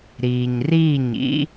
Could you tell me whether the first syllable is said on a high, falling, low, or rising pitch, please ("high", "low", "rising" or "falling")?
low